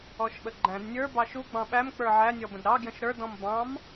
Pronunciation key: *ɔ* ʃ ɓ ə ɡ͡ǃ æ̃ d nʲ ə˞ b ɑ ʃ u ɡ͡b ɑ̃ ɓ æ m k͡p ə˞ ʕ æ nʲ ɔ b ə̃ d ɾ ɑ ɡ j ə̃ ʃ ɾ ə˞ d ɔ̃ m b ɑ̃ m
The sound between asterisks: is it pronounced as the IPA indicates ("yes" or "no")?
yes